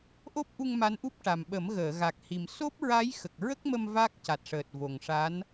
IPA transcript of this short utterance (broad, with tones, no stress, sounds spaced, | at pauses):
ʔ o˦˥ p̚ ʔ u˧ ŋ m a˧˥ n ʔ u˦˥ p̚ ʈ a˨˩ m ɓ ə˨˩˦ m ɣ əː˨˩˨ ɣ a˨˩ k̚ h i˨˩ m s o˦˥ p̚ ɹ a˧˥ j x ə˨˩ k̚ ɹ ə˦˥ k̚ m ə˧ m v a˦˥ k̚ c a˨˩ t̚ ʂ əː˨˩ t̚ v o˨˩ ŋ ʂ a˧˥ n